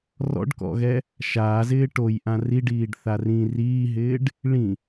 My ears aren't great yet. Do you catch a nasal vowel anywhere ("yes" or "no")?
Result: yes